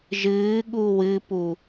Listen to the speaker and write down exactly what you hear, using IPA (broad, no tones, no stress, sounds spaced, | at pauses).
ʒ ɨː ɠ u w ɨ p u